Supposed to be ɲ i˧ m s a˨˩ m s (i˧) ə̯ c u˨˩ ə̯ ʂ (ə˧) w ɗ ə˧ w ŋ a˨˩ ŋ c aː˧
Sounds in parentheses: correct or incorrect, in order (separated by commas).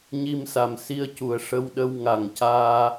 correct, correct